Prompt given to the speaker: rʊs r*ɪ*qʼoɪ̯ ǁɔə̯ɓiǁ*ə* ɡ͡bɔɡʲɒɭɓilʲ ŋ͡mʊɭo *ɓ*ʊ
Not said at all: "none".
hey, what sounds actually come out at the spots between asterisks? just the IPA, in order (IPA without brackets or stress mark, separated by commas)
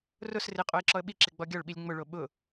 ɪ, ɪ, ɓ